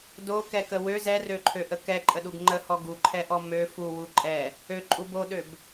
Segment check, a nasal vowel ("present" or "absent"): absent